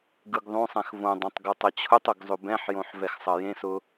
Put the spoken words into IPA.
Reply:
ɡ ɯ ɡ ðˤ õ sˤ ɛ̃ x v õ dˤ ẽ tˤ ɡ o tˤ ɐ t͡ɕʰ ʊ tˤ ɵ ɡ zˤ ɵ b ɛ̃ ħ j õ ħ v ɛ x sˤ ɐ j ẽ s ʊ

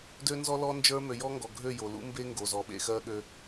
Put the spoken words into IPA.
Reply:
d ø˦ n z ɔ˦ l ɔ˦ n d͡ʒ ə˞˦ m ø˨ j ɔ˦ ŋ ɡ ɔ˨ ɡʱ ø˦˨ j o˨ l ṵ˦ m b e˦ ŋ ɡ o˨ z ɔ˨ ɓ ḛ˦˨ x ɜ˦ ɠ ø˦

